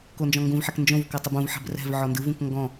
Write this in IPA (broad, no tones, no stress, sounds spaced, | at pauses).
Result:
k o n d͡ʒ ɔ̃ ŋ ɡ ũ v ħ ɛ k n d͡ʒ õ v k ɔ tˤ ɯ b ũ v ħ ɛ̤ b r ɛ̤ v ʕ ɔ n d ɯ v ũ k ŋ ɡ ɔ̃